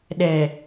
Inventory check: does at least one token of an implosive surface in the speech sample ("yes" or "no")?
yes